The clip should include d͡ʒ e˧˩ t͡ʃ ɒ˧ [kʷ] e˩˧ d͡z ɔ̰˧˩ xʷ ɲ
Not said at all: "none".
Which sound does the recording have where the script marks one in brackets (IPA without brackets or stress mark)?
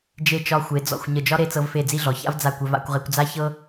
xʷ